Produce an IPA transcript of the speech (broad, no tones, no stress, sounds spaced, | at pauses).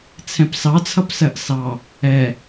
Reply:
t͡sʰ ɛ̃ p s ɑ t͡sʰ ʌ p s ɜ ʔ s ɑ | ɛ